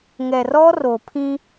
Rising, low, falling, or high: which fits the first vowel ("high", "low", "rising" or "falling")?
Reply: low